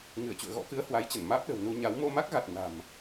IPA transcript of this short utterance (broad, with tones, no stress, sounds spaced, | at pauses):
ŋ ɨ˧˩ ə̯ t͡ɕ ṵ˧˨ ə̯ ɣ ɔ̰˧˥ k ɨ˨˦ ə̯ h w a˨˦ j t͡ɕ ə˧˩ n m aː˦˥ p̚ ɗ ə̤˨˩ w n u˧ ɲ a˨˦ w m o˧ m a˦˥ k̚ ɣ a˨˩ t̚ n a̤˨˩ m